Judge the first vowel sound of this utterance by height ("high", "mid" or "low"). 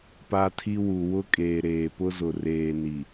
low